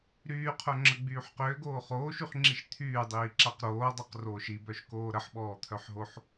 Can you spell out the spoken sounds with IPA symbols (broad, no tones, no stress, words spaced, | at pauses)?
ɾyːqʰœŋ͡ǁəɡ͡byːħ qʏːɡoː χoːʃyχŋ͡ǁiʃ t̪ʰyːdˤiːǁaq ɾoːdˤoqroːʃ ibœʃkoː ɾəħɓɔːt̪ʰœħɦoħ